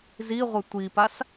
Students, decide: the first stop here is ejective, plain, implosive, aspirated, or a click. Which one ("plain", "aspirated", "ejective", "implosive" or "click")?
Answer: plain